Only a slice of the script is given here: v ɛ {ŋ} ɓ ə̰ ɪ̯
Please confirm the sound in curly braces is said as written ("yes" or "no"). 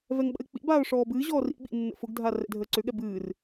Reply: yes